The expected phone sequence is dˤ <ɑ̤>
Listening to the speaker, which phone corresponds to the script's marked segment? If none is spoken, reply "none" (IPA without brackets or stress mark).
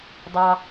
ɑ